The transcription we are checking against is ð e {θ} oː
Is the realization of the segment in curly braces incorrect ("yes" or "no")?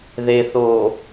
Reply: no